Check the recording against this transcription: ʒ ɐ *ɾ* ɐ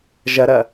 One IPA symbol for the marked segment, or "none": ɾ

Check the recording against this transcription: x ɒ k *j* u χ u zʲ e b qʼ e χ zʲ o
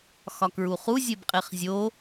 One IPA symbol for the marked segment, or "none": ɹ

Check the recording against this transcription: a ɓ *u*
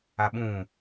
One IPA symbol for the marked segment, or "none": ũ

